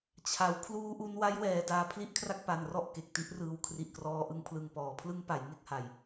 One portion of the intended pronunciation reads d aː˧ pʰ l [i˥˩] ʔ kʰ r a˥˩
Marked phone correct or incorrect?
correct